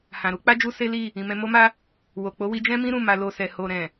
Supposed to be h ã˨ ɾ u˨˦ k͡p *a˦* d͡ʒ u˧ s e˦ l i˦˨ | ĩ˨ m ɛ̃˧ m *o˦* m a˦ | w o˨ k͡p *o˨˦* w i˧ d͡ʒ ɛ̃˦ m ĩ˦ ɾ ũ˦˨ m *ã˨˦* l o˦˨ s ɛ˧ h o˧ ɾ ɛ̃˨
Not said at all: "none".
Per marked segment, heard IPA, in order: a˦, o˦, o˨˦, a˨˦

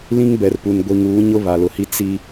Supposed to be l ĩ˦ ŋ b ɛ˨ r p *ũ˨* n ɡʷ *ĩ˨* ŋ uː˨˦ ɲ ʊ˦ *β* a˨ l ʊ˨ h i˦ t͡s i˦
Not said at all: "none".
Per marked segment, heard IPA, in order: u˨, i˨, β

